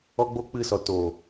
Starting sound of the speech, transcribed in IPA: ɔ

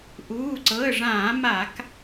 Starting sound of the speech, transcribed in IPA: ʔ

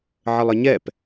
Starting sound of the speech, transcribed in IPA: ʕ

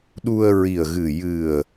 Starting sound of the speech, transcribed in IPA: ɗ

